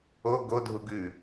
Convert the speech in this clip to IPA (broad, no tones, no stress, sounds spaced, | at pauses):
o ɡ o dʱ u ɡ ʉ